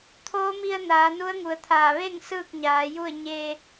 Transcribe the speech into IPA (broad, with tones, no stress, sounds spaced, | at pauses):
t̪ʰ oː˧˥ m i˧ ə̯ n aː˩˧ n u˧˥ ə̯ ŋ u˩ ə̯ t̪ʰ aː˧˩ ʋ e˥˨ ŋ s ɯː˥˨ k̚ ɲ aː˩˧ j u˥˨ ə̯ ɲ e˧